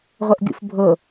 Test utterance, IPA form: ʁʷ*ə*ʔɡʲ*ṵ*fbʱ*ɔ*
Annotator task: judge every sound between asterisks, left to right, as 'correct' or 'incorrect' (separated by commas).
correct, correct, incorrect